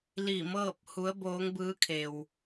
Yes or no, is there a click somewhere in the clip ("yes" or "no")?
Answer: no